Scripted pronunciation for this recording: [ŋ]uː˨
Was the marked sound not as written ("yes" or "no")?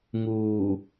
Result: no